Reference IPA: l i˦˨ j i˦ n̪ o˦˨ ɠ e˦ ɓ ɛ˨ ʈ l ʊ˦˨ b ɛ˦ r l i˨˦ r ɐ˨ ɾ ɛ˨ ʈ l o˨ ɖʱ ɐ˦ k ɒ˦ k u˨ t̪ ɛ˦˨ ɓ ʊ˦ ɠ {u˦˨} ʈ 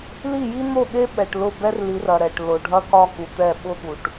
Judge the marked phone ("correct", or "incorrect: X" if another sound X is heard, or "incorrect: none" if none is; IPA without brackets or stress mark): incorrect: u˨